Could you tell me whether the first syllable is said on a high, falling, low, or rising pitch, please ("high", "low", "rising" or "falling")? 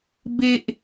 low